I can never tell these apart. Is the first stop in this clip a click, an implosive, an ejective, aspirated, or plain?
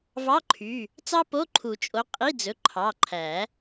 click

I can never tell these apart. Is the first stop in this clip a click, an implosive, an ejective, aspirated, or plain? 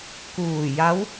plain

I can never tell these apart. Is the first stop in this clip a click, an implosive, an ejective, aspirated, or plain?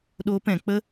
implosive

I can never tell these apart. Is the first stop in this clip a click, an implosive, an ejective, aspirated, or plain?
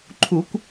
click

